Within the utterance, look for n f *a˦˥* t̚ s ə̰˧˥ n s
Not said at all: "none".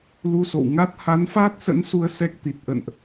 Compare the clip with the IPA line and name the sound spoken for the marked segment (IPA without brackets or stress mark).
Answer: aː˦˥